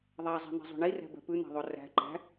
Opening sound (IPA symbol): ðˤ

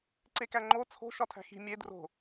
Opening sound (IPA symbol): ǀ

